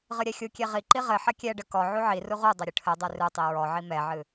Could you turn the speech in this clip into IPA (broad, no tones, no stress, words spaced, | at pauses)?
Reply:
ʁɨɾʲɛxʲukʲe ʁiǃi ʁɘ ħɐkʲɛɖɘ kɔ ʕuʕiru ʁudˤɐ ɾʲɘʈʰɘdˤe rɨtˤi ɹɔʕi mɛʕɨ